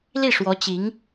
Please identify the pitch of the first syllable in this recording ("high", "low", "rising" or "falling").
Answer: falling